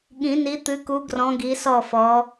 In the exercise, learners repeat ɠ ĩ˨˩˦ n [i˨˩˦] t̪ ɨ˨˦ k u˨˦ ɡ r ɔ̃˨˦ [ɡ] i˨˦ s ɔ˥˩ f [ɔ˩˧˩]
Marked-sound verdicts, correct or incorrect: incorrect, correct, incorrect

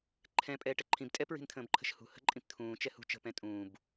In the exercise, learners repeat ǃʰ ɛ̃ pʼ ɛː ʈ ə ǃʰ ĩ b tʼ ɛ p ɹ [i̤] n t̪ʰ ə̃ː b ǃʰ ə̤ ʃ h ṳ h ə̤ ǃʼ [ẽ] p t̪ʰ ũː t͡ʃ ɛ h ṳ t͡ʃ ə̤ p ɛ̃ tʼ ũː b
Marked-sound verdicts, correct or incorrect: correct, incorrect

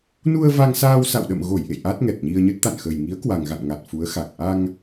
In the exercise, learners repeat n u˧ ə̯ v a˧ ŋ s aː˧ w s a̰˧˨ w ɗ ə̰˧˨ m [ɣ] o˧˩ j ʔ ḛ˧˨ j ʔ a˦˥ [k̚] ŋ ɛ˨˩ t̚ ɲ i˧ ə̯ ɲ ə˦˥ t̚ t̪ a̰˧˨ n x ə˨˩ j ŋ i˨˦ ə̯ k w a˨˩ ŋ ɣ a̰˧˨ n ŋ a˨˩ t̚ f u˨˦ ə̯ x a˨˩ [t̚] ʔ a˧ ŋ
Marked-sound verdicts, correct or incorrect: correct, incorrect, incorrect

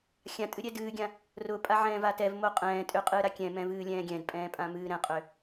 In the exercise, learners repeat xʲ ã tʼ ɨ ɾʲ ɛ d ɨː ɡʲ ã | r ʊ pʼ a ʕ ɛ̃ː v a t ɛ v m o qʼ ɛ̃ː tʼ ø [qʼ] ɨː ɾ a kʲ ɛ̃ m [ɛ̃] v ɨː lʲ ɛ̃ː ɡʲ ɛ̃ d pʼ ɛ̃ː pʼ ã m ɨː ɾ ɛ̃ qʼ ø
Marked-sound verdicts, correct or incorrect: correct, correct

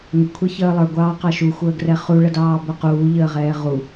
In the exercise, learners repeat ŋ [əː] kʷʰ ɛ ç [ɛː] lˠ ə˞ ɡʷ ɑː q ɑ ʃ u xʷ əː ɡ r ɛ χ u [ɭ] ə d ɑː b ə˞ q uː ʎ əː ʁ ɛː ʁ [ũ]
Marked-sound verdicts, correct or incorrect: incorrect, incorrect, correct, incorrect

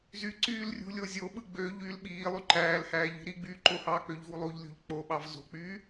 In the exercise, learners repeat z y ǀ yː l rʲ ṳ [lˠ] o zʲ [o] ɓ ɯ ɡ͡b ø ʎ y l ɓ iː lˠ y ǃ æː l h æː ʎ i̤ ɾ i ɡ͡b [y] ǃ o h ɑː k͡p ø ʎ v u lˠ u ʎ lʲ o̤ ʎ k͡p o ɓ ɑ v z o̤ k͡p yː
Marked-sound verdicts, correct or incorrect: incorrect, correct, incorrect

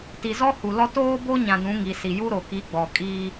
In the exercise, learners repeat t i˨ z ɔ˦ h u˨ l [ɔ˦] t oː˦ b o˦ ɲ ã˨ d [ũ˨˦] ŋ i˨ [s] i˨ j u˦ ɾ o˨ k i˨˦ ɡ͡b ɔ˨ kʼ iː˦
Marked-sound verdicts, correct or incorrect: correct, correct, correct

